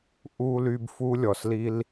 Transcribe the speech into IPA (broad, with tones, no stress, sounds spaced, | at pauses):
ʔ u˨ l y˨ b f u˦ lʲ ɔ˨ s l i˦ l